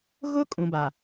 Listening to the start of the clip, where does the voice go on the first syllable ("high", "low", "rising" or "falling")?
high